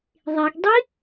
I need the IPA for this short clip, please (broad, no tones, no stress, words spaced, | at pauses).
ðˤeɡdˤi